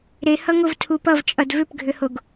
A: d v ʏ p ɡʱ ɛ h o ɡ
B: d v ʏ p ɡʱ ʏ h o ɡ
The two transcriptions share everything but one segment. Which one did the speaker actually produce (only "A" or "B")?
B